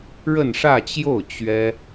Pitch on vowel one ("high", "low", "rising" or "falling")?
falling